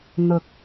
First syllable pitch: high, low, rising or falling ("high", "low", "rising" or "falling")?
low